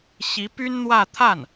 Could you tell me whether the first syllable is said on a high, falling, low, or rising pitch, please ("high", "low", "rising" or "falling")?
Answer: rising